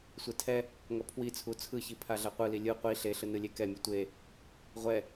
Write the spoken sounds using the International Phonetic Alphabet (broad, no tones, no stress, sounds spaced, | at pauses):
sʷ e tʰ ɛ | ŋ ʌ pʰ w i t͡sʰ u t͡sʰ ɯ ç i pʰ a ɮ a qʷ ɯ l i lʲ ɯ qʷ i ɬ e ɬ ɯ n ɯ lʲ e k ɛ mʲ ɯ tʷ e | ʁʷ ɛ